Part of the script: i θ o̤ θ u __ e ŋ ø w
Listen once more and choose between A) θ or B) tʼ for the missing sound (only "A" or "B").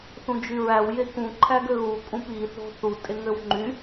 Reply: B